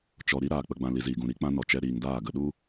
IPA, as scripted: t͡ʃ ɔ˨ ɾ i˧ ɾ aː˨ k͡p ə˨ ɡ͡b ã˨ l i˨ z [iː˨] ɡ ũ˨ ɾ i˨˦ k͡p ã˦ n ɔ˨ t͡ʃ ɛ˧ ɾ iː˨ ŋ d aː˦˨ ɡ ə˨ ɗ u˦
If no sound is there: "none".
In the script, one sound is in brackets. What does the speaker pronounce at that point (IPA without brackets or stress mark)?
iː˨